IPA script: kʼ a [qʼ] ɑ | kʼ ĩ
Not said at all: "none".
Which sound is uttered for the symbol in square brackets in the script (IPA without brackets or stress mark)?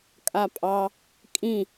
pʼ